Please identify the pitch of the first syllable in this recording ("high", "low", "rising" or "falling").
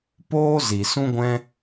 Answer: high